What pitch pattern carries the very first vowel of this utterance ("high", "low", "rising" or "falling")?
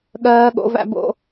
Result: high